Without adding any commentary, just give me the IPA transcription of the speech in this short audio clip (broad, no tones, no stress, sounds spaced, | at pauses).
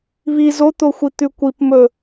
β i z o t̪ o xʷ i t̪ ʉ kʷ i p m ɵ